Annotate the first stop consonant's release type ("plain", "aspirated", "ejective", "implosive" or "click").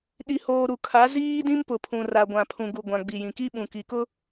implosive